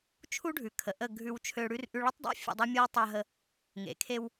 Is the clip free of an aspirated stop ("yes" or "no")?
no